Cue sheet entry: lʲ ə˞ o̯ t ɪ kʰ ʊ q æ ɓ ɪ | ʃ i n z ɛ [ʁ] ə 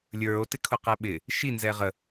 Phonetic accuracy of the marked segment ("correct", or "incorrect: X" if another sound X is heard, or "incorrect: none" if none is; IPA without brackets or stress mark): correct